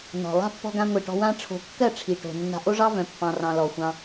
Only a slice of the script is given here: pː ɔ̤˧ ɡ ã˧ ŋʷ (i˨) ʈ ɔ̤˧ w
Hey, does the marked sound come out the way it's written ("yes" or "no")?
yes